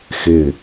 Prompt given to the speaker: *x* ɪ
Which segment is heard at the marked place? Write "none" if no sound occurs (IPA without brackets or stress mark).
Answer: x